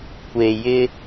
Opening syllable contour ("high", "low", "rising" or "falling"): low